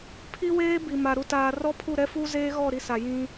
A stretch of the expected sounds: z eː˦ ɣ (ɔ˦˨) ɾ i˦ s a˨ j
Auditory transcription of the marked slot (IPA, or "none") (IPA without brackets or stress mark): ɔ˦˨